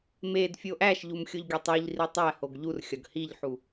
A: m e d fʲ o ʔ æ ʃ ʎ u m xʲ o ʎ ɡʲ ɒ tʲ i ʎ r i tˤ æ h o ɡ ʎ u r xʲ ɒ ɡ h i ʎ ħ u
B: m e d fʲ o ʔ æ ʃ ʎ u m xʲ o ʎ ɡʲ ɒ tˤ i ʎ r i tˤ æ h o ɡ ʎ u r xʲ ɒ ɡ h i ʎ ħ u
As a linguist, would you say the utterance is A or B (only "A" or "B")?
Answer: B